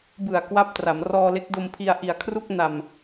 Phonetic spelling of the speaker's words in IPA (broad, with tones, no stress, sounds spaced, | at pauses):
b ɯ˨˩ a̯ k w a˥˩ p̚ t r a˩˦ m r ɔː˧ l e˦˥ k̚ d o˧ m pʰ i˧ a̯ ʔ i˨˩ a̯ kʰ r u˥˩ k̚ n a˨˩ m